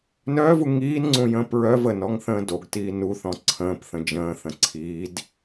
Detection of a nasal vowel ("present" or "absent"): present